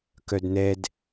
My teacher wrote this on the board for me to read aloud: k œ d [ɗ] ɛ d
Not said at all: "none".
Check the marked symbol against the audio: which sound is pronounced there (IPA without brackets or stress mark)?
n